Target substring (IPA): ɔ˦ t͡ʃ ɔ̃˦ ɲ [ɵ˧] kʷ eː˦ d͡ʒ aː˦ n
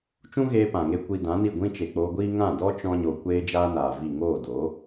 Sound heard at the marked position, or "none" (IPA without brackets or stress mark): o˧